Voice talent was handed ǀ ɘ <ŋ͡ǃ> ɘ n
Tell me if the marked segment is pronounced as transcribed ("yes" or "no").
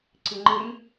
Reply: yes